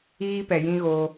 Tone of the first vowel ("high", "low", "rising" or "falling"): high